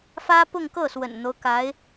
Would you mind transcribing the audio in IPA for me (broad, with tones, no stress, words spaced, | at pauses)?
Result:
fä˥pʊ˥˧ŋkɤ˥˩ swə̰˨˩nn̪o˦ʊ̯ka˧˥ɪ̯